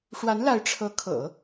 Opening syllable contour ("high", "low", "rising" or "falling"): rising